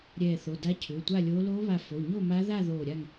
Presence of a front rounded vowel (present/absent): present